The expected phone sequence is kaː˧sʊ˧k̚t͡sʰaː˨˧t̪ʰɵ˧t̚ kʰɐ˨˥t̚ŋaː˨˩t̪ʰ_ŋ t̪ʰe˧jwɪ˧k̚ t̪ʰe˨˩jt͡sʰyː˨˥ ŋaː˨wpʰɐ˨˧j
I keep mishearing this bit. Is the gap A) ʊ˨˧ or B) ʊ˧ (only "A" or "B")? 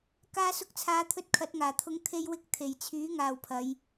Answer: B